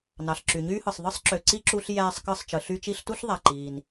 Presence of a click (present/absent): present